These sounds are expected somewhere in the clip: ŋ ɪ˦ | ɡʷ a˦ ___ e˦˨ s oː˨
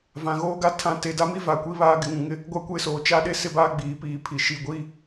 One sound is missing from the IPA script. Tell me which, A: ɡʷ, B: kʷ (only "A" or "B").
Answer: B